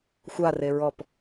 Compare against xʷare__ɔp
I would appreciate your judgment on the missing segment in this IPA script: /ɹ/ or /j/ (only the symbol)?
ɹ